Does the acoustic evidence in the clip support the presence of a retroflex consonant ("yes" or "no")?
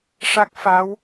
yes